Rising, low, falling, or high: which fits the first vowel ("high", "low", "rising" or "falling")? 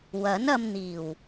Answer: rising